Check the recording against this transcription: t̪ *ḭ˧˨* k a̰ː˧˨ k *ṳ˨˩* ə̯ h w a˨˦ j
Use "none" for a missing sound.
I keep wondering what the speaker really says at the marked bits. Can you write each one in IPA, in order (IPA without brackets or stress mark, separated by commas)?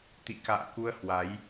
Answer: ḭ˧˨, u˧